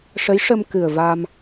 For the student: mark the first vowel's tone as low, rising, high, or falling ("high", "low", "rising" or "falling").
rising